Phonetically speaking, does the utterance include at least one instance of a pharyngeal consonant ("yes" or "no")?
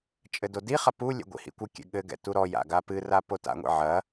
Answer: yes